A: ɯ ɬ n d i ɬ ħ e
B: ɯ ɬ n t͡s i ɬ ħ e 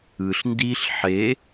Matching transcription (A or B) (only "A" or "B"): A